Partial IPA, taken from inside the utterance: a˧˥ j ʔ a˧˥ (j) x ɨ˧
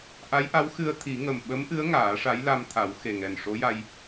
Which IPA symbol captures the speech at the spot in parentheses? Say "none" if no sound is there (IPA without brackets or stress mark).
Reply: w